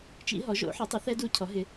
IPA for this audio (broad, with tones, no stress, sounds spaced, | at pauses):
t͡ʃ ḭ˦˥ ɦ ɔ˨˥ ʒ o̰˨˥ ħ ɛ˨˥ tˤ u˨˥ θ ɛ˦˥ d u˦˥ cʰ ɔ˨˥ ɦ ɪ˨˥